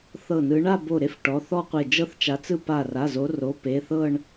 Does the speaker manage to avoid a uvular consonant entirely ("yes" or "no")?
no